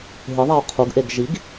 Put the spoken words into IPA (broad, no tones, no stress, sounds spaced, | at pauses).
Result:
ɦ ɨ ðˤ ɛ ʊ̯ qʰ u ɡ ʔ e ɡ ʒ i ɡ